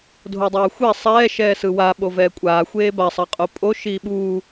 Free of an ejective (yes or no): no